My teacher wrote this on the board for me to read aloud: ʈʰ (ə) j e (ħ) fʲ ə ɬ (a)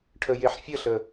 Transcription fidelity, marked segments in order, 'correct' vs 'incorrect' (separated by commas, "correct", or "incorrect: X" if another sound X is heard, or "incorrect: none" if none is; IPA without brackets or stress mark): correct, correct, incorrect: ə